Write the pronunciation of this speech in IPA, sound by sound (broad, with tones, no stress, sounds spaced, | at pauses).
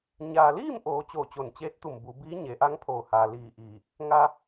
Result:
ɲ aː˩ l iː˥˨ m ʔ oː˩˧ t͡ɕ oː˧˩ t͡ɕ o˧˩ n t͡ɕ eː˧˥ t̚ t̪ u˧˩ m b u˩˧ b iː˧˥ ɲ e˩˧ ʔ a˧˥ ŋ pʰ oː˧˩ h aː˩ l iː˧˩ ʔ iː˧˩ | ŋ a˧